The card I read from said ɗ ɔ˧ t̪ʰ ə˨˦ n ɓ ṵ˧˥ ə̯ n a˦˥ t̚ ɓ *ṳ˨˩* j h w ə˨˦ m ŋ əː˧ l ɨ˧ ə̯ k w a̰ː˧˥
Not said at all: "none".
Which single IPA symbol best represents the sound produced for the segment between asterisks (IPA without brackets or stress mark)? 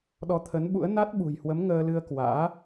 ṳ˨˩